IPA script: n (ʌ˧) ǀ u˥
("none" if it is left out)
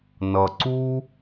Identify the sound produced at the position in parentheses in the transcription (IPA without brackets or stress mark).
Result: ʌ˧